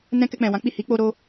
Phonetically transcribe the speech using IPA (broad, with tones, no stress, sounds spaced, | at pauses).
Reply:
n ɛ̃˧ k ɛ˧ k͡p ɛ̃˨ w ã˨˦ k͡p i˦˨ h i˨˦ k͡p o˧ ɾ o˦